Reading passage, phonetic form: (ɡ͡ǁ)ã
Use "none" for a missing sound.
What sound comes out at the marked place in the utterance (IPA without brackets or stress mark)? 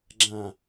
ɡ͡ǁ